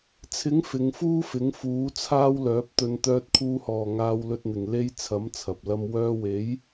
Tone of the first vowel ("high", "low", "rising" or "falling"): rising